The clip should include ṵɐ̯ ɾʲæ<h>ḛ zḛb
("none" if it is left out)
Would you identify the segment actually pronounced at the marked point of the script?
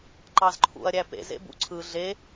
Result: p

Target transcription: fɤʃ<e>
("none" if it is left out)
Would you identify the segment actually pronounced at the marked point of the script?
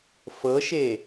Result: e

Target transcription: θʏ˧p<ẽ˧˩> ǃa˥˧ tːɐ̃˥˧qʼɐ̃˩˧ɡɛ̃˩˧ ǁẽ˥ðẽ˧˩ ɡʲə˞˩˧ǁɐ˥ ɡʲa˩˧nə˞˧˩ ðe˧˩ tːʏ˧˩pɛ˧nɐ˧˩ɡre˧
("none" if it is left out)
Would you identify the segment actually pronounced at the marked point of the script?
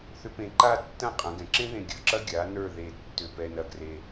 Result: ẽ˧˩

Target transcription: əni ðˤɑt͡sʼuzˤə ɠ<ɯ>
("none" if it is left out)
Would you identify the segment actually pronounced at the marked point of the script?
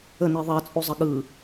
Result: ɯ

